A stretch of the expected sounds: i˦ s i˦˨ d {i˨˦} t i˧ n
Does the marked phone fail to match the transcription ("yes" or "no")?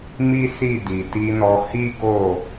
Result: yes